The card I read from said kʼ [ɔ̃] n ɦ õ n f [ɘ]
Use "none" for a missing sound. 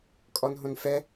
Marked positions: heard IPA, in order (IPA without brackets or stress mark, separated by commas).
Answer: ɔ, ɛ